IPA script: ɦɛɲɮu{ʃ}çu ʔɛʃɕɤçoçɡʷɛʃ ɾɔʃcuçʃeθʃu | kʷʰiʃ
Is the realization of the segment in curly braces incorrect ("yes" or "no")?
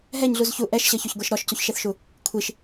yes